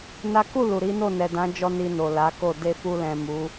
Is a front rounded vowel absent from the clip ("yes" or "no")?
yes